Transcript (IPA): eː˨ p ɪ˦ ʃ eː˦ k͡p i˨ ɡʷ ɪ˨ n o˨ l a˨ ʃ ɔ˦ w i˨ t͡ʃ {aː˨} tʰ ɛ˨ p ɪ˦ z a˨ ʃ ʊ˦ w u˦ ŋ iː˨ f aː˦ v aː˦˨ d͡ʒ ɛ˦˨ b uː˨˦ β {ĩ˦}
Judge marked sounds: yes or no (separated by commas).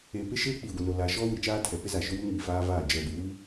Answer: no, no